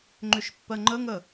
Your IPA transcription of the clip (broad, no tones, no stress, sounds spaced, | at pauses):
ŋ͡ǃ ʏ ʃ pː ɜ ŋ͡ǃ ə ŋ ə